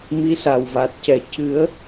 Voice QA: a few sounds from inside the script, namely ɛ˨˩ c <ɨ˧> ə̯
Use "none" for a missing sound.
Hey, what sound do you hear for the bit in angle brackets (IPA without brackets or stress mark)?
ɨ˨˩˦